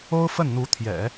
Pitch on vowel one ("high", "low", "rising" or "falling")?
high